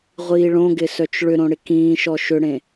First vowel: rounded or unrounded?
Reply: unrounded